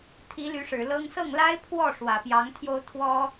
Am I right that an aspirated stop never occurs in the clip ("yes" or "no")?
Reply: no